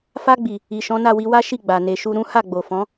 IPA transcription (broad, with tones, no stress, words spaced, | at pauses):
fa˧ɡ͡bi˨ | i˨ʃɔ̃˨˦na˦˨wi˧ wa˦ʃi˦˨ ɡ͡ba˨ ne˨ ʃu˧ɾũ˦ ha˦˨ɡ͡bo˨fɔ̃˨˦